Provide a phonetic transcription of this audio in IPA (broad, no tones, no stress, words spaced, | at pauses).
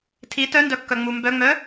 tʰi tœndœkːœŋ͡mu mbœŋ͡mœ